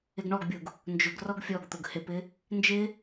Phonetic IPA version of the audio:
ɪ ɡ ɳ ɔ ɡ bʲ u ɡ | n d͡ʒ ʊ ɡ r ɔ ɡ fʲ ɔ ɡ t̪ ʊ ɡ h ɪ p ɪ | n d͡ʒ ɪ

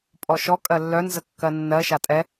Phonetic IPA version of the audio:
pʼ ɔ ʃ ɔ kʼ ɜ lː œ n z ə kː ɜ nː ɜ ʃ a tʼ ɛ

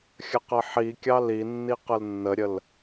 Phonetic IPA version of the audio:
xʲ ə q ə ħ i kʲ ɑ l i nː i q ə l nː ə ɾʲ ə l

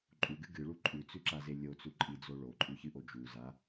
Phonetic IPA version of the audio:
ǃʼ u ɡ ɨ ɡ ɨ ɭ u ǃʼ ʉ t͡s ʉ ǁ a z e lʲ o t͡s u ǃʼ i d͡z o ɭ o ǃʼ ʉ ç ɨ ʔ o d͡ʒ u z a

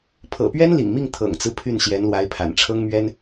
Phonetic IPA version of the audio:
pʰ ɤ̰˨˩ p ɥ ɛ˥ n l ḭ˨˩ ŋ m i˥˩ ŋ t̪ʰ ɤ̰˨˩ ŋ t͡s ɹ̩˦ pʰ y˥˩ n ɕ j ɛ˧˥ n l w a˧˥ ɪ̯ pʰ a̰˨˩ n ʈ͡ʂʰ ɤ˥ ŋ m ɥ ɛ˥ n

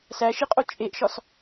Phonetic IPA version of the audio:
s æ ʃ i qʼ o t͡ʃʼ e ʔ ʃ ɒ s

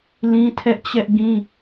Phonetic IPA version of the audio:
l ĩ˦ tʰ ɛ˦ ʔ t͡ɕ ɛ˦ ʔ ɡ ĩ˦

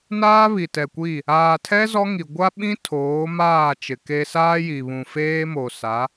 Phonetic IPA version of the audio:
n aː˦ β i˨ t ɛ˨ kʷ i˦˨ | aː˨ tʰ ɛ˦ z ɔ˦ ŋ i˨ ɡʷ a˦ ɓ ĩ˦ tʰ oː˨˦ m aː˦˨ t͡ʃ ɪ˨ k e˦ s aː˦ j i˨ β ũ˨ f eː˦ m o˨ s a˨˦

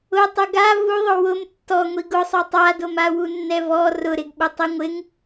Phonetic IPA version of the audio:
ʊ tˤ ʊ ɡ a v u ðˤ ʊ w ʊ m tː ɔ ŋʷ i ɡ ʊ sˤ o tˤ a d o m a w u nː ɛ v ɔ r ʊ ɾ ɪ ɡ ɓ ʊ tˤ i ŋʷ ɪ ŋ

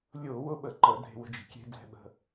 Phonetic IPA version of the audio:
lʲ ʊː˧˩˧ w ʊ˧ ɓ ə˧˩˧ ǃ ə˧˩˧ dʱ e̤˧ w ə̤˧ d͡ʒ i̤˧˩˧ kʲ e̤˧ d͡z ɛ̤˧ ɓ ə̤˧

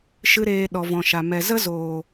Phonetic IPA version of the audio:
ʃ ɨ˦ ɾ eː˧ ɗ ɔ˨ v ɔ̃˨ ʃ a˨ m ɛ˨ z ə˦ z oː˨

